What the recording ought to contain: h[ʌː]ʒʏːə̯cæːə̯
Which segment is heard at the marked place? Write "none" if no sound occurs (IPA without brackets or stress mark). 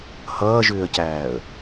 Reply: ʌː